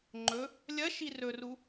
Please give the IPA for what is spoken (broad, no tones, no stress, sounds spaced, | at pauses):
ŋ͡ǃ ɵ | lʲ ɐ ʃ i r ɵ r u